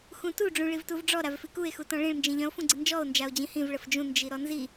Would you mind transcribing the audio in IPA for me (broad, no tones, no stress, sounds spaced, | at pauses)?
x ũ t u ɖ͡ʐ ũ ɭ i v t u v ɖ͡ʐ ɔ ɾ a v f i k u e̯ x u t ɔ̃ ɭ ĩ ɭ n d͡ʒ ĩ ʎ œ̃ o̯ f ũ ɡ͡ǀ ə n d͡ʒ ɔ o̯ n d͡ʒ a o̯ d͡ʑ ĩ h ĩ v ɭ ə f d͡ʒ ũ n d͡ʒ i ɾ ɔ n z i